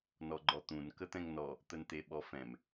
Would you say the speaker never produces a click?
no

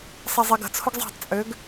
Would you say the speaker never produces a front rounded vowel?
no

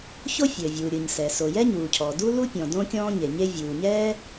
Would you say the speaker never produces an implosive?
yes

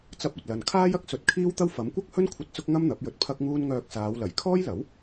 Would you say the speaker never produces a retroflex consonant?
yes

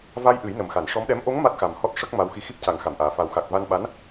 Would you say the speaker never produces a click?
yes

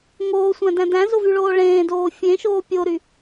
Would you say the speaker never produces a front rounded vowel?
no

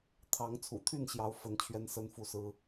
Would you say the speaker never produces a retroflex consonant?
yes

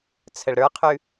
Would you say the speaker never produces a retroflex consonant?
no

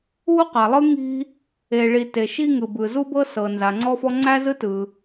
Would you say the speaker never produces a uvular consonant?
no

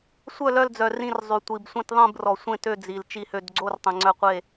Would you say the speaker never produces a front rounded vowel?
no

